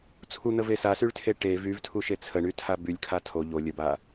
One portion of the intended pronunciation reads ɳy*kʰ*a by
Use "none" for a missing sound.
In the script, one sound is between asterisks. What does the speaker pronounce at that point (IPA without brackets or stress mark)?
tʰ